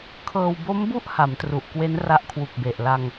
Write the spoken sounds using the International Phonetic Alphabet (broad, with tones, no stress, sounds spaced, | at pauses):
kʰ ɤː˧ w b o˦˥ m b u˦˥ ʔ h a˩˦ m t r u˨˩ ʔ k w e˦˥ n r a˦˥ ʔ kʰ w u˨˩ k̚ b e˨˩ ʔ l a˧ ŋ